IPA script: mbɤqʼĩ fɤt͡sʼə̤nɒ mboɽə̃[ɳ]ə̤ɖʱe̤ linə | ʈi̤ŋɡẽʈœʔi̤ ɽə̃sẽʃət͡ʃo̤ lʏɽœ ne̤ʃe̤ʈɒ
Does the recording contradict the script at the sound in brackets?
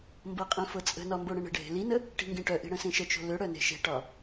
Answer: no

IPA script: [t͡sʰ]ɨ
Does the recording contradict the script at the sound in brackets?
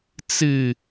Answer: yes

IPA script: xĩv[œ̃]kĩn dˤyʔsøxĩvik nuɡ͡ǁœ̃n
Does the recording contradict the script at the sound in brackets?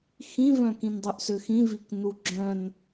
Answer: no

